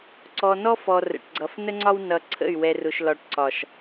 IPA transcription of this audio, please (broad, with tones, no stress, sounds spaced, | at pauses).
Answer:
ǀ ɔ˨ n ɔ˦ f ɔ˨ r ə̰˨ ʈ ɡ͡ǀ ʌ˨ f n ə˦ ŋ͡ǀ ɒ˦ w n ʌ˨ ǀʰ ə̰˦˨ y̯ w ɛ˨ r ʊ˨ ʃ l ɒ˨ ʈ ǀ ɒ˨ ʃ